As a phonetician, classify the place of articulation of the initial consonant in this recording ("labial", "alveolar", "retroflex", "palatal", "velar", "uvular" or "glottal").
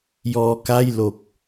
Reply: palatal